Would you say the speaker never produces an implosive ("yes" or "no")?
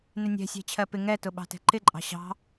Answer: no